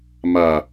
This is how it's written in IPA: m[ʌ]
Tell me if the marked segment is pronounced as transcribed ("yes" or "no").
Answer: no